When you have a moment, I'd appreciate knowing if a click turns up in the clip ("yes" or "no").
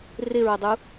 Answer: no